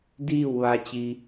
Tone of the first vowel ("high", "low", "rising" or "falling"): falling